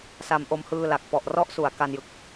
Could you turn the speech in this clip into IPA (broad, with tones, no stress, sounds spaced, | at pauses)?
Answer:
s a˧ m ʔ o˧ m h ɯː˧ l a˨˩ k̚ p ɔ˨˩ ʔ r ɔ˥˩ ʔ s u˨˩ a̯ k a˧ n j ɯ˨˩ k̚